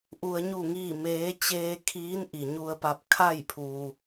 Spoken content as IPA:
ʔ u˧ ə̯ ɲ u˥˨ ŋ iː˥˨ m eː˧˥ t͡ɕ eː˧ kʰ iː˧˥ n ʔ i˩ ɲ u˧ ə̯ p a˧ p̚ kʰ a˥˨ j pʰ uː˩

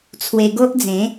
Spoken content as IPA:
t͡sʰ w e˧ ɡ o˦ ʔ d͡z ẽ˨˦

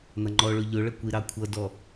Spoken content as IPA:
n̪ ʌ ŋ͡ǃ ɔ ɭ ʊ ʎ ʊ ɭ ə kʷ i ɾ ɑ kʷʰ ʌ d ɔ

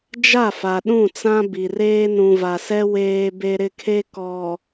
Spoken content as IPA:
d͡ʒ a˦˨ f a˨ ɗ ũ˦˨ t͡s ã˦ b i˨ r eː˦ n ũ˨ v a˨ s ɛ˦ w eː˦ b e˦ ɾ ɪ˦ kʰ e˦ k ɔ˨

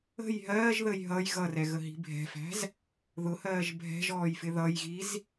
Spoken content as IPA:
ə̤ j ɦ ɜː ʒ ð ə j ɦ ʌ j ɣ ʌ r ɛ ɣ ə ɦ i̤ bʱ ɛ̤ f æ̤ z | ð ʊ h ɜː ʒ bʱ ɛ̤ ʒ ɔː j f ɪ ð ʌ j ɣ i z

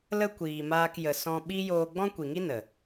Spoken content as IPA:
l ə˦ kʷ iː˨ m aː˧ k j ə˨ s ɔ̃˧ ɓ i˦ j oː˧ ɡ͡b ɔ̃˦ kʷ i˨ ŋ i˦ n ə˨

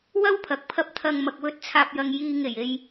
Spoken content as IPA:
w ɐ˥ w pʰ ɐ˨ k̚ pʰ ɐ˧ p̚ t̪ʰ ɐ˨ ŋ m ɐ˨ k̚ w ɵ˨˥ t̚ t͡sʰ aː˨ p̚ j ɐ˨ ŋ j iː˨ ŋ e˨˩ j e˨ j

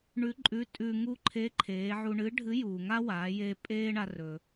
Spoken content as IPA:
ɳ ʉ˧˥ ǃʼ ʉ˧˥ tʼ ʉ˧ ŋ u˥ ǃʰ e˧˥ ǃʰ eː˩˧ ʕ u˧ ɳ ɨ˧˥ ɖʱ ɨ˧˥ j uː˩ ŋ a˥ w aː˩˧ j eː˧ pʼ eː˥ ɳ a˧ r ɵ˩

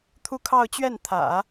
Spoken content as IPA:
t̪ʰ u˥˧ kʰ ɑ˥˧ ʊ̯ t͡ɕ ɥ ɛ˥˩ n t̪ʰ ä̰˨˩˦

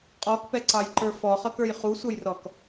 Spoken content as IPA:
qʼ ɔ k p ɛ ǀ ɑ j ǃ ə˞ f ɔ χ ʌ k ə˞ j χ u sʷ ʌ j r ɔ k

